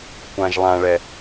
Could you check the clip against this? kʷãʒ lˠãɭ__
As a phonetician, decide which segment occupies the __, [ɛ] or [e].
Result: ɛ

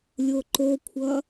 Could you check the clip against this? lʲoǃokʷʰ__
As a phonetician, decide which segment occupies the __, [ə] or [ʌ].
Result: ʌ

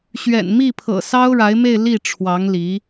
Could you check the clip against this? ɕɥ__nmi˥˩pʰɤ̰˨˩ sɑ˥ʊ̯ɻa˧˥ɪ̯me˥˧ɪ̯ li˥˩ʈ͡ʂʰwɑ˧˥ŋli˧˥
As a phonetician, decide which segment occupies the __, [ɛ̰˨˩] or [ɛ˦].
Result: ɛ̰˨˩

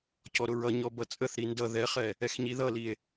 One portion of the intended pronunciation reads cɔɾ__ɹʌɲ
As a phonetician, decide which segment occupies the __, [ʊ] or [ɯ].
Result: ʊ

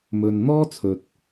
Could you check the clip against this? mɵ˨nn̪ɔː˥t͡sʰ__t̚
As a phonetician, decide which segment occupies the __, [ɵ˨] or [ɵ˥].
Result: ɵ˨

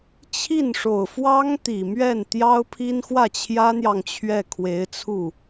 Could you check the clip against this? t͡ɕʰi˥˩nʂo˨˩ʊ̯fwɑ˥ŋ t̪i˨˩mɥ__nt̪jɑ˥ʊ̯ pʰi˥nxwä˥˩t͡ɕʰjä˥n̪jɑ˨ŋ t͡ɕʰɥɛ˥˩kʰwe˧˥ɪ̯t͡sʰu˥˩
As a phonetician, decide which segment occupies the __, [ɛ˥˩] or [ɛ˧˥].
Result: ɛ˥˩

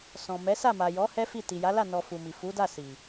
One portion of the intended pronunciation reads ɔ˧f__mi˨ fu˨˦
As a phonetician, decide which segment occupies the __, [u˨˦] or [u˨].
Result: u˨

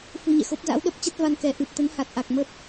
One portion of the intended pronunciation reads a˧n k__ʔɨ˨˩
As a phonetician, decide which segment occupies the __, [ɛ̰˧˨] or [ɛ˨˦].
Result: ɛ˨˦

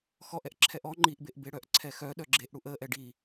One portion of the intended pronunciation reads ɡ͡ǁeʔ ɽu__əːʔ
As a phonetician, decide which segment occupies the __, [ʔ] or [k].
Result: ʔ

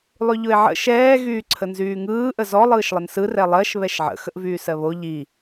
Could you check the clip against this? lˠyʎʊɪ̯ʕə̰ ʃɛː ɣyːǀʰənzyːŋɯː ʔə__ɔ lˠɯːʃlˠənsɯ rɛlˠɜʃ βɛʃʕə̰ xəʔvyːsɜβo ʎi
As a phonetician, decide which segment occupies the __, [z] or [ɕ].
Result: z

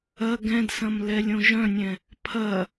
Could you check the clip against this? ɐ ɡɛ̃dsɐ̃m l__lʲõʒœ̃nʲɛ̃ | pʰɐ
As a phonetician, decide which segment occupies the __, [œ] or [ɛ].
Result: ɛ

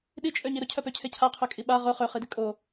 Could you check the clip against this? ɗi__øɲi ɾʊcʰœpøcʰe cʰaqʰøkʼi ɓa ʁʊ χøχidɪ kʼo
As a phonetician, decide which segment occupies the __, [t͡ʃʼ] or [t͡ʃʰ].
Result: t͡ʃʼ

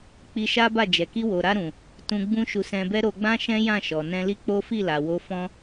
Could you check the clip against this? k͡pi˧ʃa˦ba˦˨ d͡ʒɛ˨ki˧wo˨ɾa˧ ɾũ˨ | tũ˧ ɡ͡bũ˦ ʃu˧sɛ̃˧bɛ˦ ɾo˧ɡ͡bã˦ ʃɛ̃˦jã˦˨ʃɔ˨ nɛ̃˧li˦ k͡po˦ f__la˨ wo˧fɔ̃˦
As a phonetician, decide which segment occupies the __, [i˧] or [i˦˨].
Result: i˦˨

